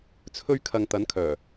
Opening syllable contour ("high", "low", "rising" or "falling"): high